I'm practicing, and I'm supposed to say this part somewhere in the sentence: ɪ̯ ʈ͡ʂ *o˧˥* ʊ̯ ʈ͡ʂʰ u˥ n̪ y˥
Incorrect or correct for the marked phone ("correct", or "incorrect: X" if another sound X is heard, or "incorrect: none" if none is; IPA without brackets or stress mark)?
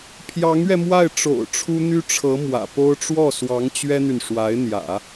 incorrect: o̰˨˩